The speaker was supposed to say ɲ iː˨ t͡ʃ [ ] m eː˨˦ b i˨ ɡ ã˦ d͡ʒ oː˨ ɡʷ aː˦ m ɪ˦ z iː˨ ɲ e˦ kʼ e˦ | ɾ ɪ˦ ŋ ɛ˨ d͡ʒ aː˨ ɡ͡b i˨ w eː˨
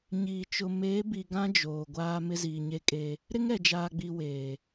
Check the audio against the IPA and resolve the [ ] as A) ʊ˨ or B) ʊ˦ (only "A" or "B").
A